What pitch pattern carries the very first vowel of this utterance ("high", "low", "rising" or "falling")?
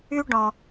high